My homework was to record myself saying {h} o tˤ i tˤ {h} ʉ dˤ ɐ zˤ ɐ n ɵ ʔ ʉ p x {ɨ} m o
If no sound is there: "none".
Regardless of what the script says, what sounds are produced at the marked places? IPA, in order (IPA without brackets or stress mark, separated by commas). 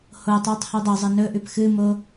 h, h, ɨ